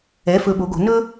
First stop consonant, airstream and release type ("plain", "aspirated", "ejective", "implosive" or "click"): implosive